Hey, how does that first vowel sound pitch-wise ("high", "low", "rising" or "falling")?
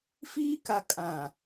high